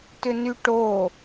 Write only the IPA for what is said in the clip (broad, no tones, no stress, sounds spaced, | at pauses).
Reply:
t ʏ n y ʈ o